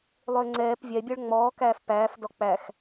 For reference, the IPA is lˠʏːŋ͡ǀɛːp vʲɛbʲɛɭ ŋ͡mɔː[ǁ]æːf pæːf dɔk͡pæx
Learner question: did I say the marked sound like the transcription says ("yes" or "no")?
no